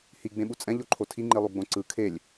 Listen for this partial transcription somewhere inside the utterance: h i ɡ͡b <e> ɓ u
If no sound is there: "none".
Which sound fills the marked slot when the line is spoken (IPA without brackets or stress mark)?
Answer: ẽ